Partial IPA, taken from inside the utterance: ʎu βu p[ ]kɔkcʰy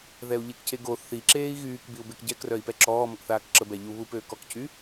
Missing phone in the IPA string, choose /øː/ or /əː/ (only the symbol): øː